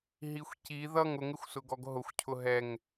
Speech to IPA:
ɦ i xʷ c i ð ʌ ŋ ʊ ŋ ɪ xʷ s ʊ ɡ ɔ ɡ ɦ ʊ xʷ cʰ ʊ ɦ ɛ ŋ

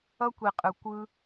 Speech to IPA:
ʌ˦ kʷ i˨ qʼ ɯ˨ kʷ ɯ˧

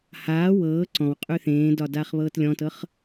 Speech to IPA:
h aː w ɤː ǀ ɔ̃ w qʼ ʉ θ ẽː d ɒ d aː χ β ɤː t lʲ ɔ̃ t ɤ χ

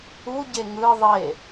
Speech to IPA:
u ɟ e ŋ ɯ ðˤ e

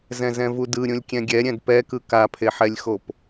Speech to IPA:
z ɛ̃ z ɛ̃ v u d ɯ ɾʲ ũ lʲ kʲ ɛ̃ ɡʲ ɛ ɾʲ ɛ̃ d p ɛ k ɯ k a pʰ e ħ ɛ lʲ x o p

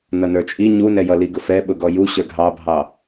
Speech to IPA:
n ʌ n ə˞ t͡ʃʼ i ɲ u n ɛ j ʌ l i ɡ ʊ f ɛ ɓ ʊ ɡ ɔ j u ɕ ə˞ ɡʱ ɑ bʱ ɑ

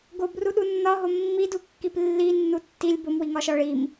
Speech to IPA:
ɡ o b r u ɗ u nː ɒ ɦ o mː i d u kː i p lː i nː u tː i lʲ b o m w i ŋ ɒ ʃ ɒ ɭ i m

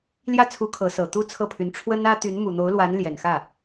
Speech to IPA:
l j ä˥ t͡sʰ u˧˥ kʰ ɤ˧˥ s ɤ˨˩ t̪ u˥ t͡sʰ ɤ˥˩ pʰ y˧˥ n ʈ͡ʂʰ w ə˥ n ä˥ t̪ y˧˥ n m u˨˩ n̪ o˧˥ ʊ̯ l w a˧˥ n l j ɛ˨˩ n x ä˥˩

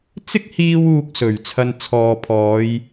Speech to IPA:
t͡s ɪ˥ k̚ h iː˧ w uː˧ k̚ s ɵ˨˩ ɥ t͡sʰ ɐ˨ n t͡sʰ ɔː˨ pʰ ɔː˨˧ j

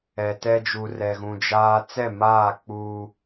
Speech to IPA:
ɛ˨ t ɛ˦ d͡ʒ u˨ r ɛ˨ ɣ ũ˨ d͡ʒ aː˦ t͡s ɛ˦˨ m aː˦˨ k͡p uː˦

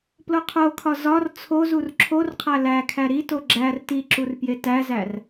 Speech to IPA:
p l o qʰ o kʰ ɒ z ɒ r t͡sʰ o z u r ǁʰ o r qʰ æ l æ kʰ æ ɾ i t o ɡ͡ǁ æ r t i ǁ u r p j e t æ z æ r

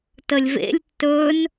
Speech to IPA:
t ə lʲ v ḛ lʲ tː ɵ n

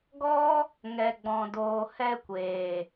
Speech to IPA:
ɡ ɔ˦ | ŋ ɛ˨ ɡ͡b ɔ̃˨ d oː˨ h ɛ˧ kʷ eː˨

